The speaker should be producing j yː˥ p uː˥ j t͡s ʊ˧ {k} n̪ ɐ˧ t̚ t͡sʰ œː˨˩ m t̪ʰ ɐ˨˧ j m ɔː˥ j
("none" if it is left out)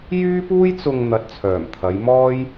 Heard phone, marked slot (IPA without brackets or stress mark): ŋ